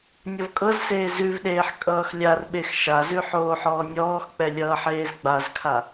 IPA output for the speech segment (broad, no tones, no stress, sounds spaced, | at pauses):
nʲ ʌ v kʼ ɤ z s eː z ʉ v ɗ eː ħ kʼ ʌː x lʲ a r ɓ e x ʃ a z ʉ ħ oː ħ ɔː nʲ ɔː x k͡p ɛ lʲ ʌː ħ eː z ɡ͡b a z kʰ a